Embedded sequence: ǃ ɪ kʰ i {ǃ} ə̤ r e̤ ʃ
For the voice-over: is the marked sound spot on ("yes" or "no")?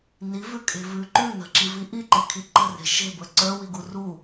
yes